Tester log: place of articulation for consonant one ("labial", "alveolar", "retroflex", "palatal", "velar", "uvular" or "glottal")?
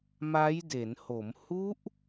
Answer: labial